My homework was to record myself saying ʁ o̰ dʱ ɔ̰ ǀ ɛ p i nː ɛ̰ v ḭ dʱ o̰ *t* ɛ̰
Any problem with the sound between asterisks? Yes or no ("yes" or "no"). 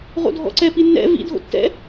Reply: yes